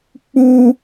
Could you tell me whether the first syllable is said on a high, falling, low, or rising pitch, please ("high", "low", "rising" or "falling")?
high